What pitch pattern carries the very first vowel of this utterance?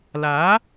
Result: rising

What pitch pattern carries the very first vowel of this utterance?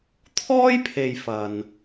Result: high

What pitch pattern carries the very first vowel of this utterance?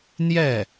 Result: falling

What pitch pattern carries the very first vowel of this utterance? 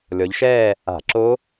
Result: rising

